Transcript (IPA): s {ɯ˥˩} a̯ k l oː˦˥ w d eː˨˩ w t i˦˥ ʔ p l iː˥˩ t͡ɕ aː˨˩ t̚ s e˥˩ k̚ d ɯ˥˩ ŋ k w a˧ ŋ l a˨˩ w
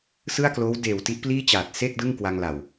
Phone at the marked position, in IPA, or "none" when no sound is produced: ɯ˥˩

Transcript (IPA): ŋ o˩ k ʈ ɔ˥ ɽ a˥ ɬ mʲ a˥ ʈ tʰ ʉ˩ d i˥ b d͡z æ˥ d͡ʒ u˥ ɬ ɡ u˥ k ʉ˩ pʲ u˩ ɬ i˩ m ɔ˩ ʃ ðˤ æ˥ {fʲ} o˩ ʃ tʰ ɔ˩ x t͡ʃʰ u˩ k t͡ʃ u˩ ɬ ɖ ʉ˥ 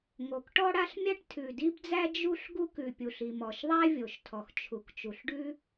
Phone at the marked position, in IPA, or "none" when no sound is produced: vʲ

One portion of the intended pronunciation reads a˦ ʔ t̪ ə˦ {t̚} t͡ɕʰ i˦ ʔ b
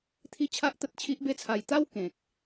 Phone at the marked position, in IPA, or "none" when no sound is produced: t̚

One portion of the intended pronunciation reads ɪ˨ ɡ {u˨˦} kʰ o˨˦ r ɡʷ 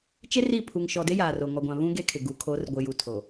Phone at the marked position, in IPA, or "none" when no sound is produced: u˨˦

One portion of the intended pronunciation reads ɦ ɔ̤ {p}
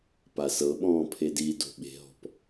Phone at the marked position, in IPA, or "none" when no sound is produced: p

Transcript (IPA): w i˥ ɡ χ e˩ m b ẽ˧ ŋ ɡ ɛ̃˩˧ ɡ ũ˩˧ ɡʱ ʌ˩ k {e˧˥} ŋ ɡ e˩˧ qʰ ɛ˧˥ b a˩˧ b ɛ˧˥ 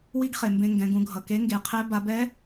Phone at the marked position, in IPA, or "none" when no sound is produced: e˧˥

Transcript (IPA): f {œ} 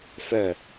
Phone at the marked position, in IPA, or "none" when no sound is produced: œ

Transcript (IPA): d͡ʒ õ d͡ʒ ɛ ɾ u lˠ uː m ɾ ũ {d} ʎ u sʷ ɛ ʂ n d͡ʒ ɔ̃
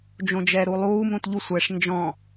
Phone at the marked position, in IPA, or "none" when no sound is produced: t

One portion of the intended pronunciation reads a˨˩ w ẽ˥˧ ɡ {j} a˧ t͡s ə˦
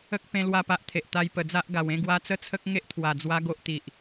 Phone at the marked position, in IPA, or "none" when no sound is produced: w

